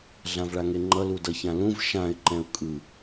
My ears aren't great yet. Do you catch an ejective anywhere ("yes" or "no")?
yes